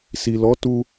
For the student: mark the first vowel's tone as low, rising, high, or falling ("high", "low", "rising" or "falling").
low